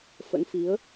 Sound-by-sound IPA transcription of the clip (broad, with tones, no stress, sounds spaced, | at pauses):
f ə̰˧˥ n f i˨˦ ə̯